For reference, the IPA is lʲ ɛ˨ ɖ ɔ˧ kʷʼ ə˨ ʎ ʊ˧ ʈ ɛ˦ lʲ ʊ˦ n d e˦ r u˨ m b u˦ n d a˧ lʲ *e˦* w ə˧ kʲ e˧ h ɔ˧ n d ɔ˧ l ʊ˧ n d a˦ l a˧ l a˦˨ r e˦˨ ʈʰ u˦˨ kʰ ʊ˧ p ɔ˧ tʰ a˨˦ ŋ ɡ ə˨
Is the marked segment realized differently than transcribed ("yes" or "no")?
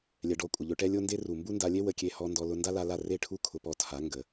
no